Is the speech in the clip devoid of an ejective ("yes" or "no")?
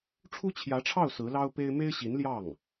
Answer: yes